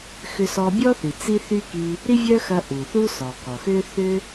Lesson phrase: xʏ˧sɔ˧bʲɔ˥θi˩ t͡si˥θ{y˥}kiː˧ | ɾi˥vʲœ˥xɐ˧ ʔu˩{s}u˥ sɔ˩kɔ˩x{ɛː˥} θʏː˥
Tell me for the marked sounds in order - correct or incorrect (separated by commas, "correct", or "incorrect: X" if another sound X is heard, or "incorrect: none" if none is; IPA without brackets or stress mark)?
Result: correct, incorrect: θ, incorrect: ʏː˥